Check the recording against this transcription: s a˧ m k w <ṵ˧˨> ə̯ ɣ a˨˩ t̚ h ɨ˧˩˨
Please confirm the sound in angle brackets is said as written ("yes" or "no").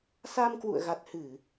yes